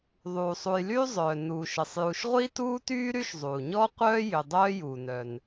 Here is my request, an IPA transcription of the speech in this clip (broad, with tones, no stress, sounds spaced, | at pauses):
ðˤ uː˩ sˤ u˨ j l yː˥ zˤ œː˩ n uː˩ ʃ ə˩ sˤ j u˨ ʃ ʁʷ i˥ t uː˥ t yː˥ ɾ y˥ ʃ zˤ u˩ ɲ ɔ˥ qʷ œː˥ j ʏ˨ dˤ œː˦ j u˩ n œ˩ n